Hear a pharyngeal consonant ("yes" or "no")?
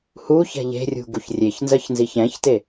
no